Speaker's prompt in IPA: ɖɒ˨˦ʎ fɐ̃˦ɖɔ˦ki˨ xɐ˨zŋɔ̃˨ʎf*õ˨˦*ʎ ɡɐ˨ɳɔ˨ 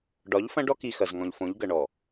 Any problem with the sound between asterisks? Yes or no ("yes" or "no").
no